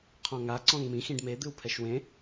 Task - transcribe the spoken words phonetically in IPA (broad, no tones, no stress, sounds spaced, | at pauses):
qʰ ɔ̃ ŋ a ǀ ɔ̃ ŋ m ĩ x ĩ ɖ m e d̪ ɨ w pʰ ɛ ʃ w ẽ